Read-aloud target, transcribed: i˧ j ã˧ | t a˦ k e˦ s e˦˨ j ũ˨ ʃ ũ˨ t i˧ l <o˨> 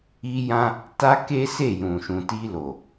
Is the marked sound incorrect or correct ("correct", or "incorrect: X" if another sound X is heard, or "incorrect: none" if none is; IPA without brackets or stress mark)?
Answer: correct